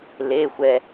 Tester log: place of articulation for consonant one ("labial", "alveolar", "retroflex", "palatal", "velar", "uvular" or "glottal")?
alveolar